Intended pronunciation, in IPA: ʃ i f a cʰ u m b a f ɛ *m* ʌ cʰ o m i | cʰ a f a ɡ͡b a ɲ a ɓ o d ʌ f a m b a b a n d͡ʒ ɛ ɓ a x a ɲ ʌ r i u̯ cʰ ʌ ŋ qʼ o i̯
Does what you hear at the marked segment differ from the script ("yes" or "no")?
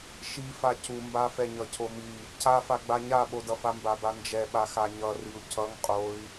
yes